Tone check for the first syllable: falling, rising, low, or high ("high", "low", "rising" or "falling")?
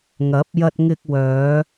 rising